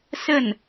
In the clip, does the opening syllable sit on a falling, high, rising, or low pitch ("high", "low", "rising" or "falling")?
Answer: falling